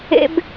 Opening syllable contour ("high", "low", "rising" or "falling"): high